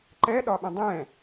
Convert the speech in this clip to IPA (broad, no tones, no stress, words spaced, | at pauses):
ǃɛɗɒɓə̃ dˤɛ̃